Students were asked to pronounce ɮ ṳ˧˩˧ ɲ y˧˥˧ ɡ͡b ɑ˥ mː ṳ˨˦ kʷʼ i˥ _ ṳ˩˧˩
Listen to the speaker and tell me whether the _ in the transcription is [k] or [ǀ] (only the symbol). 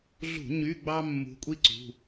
ǀ